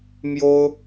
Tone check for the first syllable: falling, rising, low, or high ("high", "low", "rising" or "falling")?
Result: high